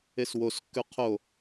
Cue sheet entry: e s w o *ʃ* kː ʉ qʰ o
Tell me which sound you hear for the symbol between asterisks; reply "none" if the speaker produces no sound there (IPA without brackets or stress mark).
s